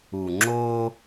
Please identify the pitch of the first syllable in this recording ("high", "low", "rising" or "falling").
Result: low